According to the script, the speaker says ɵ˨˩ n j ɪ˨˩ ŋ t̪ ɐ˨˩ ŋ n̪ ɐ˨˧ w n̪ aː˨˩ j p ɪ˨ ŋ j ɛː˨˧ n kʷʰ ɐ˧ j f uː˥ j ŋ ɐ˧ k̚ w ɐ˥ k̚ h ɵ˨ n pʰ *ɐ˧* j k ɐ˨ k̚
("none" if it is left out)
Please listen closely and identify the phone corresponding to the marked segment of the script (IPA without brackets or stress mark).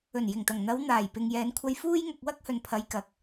ɐ˨˧